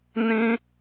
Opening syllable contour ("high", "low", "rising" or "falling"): high